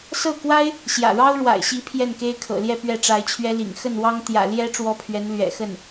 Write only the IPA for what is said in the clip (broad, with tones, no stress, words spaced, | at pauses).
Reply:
sɤ˥˩kwa˥ɪ̯ | ɕjä̰˨˩ɻɑ˥ʊ̯ɻwa̰˨˩ɪ̯ɕi˧˥ pʰjɛ˥˩nke˥ɪ̯kʰɤ̰˨˩ljɛ˥˧ pɥɛ˥˩ʈ͡ʂa˧˥ɪ̯t͡ɕʰɥɛ˥lḭ˨˩ŋ xə˥˩nwɑ˥ŋ t̪jä̰˨˩ ljɛ˥ ʈ͡ʂwɔ˥pʰɥɛ˧˥n lɥɛ̰˨˩xə˥˩n